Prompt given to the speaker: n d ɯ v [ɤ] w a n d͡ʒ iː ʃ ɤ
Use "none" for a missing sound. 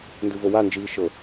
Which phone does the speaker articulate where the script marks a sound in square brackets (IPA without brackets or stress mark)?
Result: o